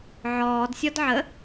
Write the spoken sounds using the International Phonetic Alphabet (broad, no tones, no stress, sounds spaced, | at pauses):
ʕ ɔː d sʲ ɔ d ʕ ə